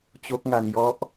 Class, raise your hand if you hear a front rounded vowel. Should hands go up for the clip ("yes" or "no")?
no